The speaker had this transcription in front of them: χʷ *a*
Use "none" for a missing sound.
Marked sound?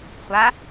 a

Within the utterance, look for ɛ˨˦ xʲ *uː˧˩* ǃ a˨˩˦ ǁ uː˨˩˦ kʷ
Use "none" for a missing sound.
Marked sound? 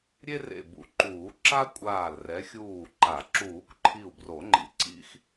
uː˧˩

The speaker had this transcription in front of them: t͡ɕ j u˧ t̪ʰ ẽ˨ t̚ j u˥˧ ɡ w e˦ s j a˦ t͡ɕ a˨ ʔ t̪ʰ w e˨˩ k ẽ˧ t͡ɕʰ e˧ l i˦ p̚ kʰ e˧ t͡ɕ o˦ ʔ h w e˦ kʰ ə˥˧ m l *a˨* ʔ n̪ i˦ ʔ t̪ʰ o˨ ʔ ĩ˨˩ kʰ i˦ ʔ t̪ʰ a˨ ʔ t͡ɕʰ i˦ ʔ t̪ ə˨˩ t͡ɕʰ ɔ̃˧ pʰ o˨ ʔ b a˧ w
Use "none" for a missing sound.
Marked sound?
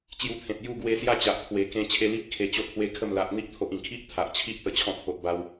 a˨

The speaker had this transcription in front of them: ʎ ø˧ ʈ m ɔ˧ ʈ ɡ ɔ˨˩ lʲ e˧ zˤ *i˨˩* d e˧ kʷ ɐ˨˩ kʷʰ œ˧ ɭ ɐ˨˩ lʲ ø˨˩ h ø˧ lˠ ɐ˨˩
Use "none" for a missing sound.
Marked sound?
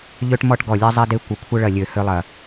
i˧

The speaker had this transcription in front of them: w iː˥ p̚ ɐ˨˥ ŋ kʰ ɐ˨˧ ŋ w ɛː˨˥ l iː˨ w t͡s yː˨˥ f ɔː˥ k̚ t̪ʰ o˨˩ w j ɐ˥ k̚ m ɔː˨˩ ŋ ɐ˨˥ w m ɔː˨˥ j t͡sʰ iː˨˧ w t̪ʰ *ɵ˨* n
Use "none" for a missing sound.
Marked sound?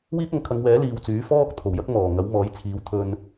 ɵ˧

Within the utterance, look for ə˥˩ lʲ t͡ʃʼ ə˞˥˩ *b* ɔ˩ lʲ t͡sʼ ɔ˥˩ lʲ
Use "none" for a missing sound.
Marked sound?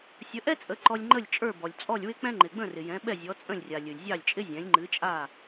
b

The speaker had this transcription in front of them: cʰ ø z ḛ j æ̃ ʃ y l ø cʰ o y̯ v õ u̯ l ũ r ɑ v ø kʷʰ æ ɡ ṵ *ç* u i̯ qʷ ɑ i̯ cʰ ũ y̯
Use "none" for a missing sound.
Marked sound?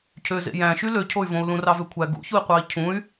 ç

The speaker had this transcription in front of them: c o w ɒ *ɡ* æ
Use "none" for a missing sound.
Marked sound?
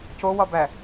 b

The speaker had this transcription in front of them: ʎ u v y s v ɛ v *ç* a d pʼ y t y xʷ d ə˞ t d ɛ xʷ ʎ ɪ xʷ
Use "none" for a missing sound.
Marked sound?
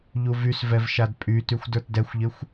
ʃ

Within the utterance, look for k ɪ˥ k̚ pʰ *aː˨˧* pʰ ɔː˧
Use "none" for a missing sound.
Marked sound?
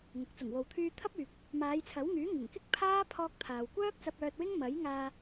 aː˥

